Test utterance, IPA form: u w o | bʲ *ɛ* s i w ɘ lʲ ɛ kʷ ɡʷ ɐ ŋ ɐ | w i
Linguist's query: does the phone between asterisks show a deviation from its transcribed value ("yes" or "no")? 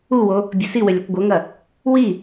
yes